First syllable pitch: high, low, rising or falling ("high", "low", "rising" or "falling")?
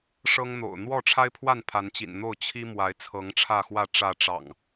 high